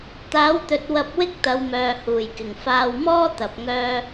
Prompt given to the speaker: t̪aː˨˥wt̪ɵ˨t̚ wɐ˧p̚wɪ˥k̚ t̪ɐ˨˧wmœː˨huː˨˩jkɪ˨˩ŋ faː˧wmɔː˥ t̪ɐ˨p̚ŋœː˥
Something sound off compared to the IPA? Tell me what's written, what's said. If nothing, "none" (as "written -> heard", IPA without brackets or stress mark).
none